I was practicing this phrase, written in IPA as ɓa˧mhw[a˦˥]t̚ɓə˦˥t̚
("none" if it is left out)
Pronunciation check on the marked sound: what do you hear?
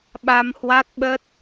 a˦˥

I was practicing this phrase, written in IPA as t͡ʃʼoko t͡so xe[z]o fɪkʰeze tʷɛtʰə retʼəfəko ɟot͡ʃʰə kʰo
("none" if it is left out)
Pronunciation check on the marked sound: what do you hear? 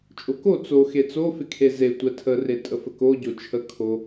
t͡s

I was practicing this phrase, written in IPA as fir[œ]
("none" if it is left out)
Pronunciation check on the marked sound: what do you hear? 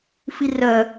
œ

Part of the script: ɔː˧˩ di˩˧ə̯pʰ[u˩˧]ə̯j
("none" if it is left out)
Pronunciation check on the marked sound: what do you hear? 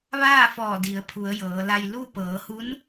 u˩˧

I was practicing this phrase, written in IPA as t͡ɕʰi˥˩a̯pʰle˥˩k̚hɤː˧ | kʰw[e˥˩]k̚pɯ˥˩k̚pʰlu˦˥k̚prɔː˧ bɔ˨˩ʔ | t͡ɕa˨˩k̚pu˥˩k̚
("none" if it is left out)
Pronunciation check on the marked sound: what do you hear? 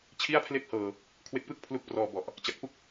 e˦˥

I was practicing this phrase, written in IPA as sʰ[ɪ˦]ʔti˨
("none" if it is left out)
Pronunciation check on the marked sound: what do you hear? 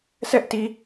ɛ˦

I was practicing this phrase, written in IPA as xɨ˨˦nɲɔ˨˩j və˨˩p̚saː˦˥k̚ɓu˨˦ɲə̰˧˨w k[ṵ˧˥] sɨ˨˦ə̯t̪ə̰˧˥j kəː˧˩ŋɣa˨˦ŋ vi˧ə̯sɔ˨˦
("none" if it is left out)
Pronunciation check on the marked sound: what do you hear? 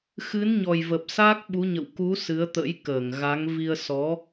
u˨˦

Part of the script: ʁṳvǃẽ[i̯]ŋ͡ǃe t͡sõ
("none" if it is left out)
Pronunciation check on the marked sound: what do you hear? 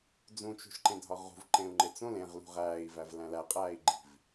u̯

